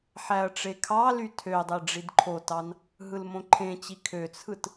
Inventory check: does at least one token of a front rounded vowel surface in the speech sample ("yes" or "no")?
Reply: yes